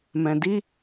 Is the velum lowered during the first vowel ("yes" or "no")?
yes